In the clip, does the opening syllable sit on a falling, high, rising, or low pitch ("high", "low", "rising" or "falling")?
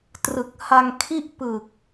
low